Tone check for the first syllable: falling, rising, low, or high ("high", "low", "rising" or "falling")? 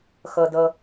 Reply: low